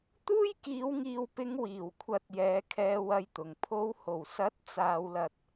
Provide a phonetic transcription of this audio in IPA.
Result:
t̪uː˥jkiː˨˧wŋiː˨wpɪ˨˧ŋ wiː˨˩wkʷʰɐ˨t̚ jɛː˨˧kʰɛː˧wɐ˧jt̪ʊ˨˩ŋ pʰo˨˧who˨˩wsɐ˨˥t̚ t͡saː˨wlɐ˨t̚

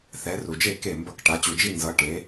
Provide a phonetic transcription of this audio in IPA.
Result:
θɛ˨˦ru˨d͡ʒe˥˩ ke˥˩mbʌ˥˩k ʈa˨˦t͡ɕu˨d͡ʒi˥˧ nzʌ˨˦ʈe˨˦

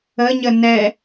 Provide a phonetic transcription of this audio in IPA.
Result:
əɲə nɛ

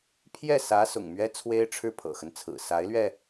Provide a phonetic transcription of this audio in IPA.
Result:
pʰjɛ˥˩sä˧˥ sʊ̰˨˩ŋmɥɛ˥t͡sʰwe˥ɪ̯ ʈ͡ʂʰɻ̩˥˩pʰɤ̰˨˩xə˦nt͡sʰɹ̩˨˩ sa˧˥ɪ̯lɥɛ˧

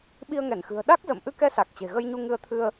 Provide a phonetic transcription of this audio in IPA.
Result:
ɓi˧ə̯ŋɛ˧˩nxɨ̤˨˩ə̯ ɗa˦˥k̚zə̰˧˨m ʔɨ˧kɛ˧sa˨˩k̚ t͡ɕe̤˨˩ɣə˧jɲu˧ ŋɨ˧ə̯t̪ʰɨ˧ə̯

